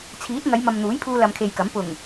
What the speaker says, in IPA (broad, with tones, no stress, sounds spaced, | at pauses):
t͡sʰ iː˨˥ t̚ ŋ ɐ˨˧ j m ɐ˨ m n̪ uː˨˥ j pʰ uː˧ l ɐ˧ m kʰ e˧ j k ɐ˨˥ m p ʊ˨˩ ŋ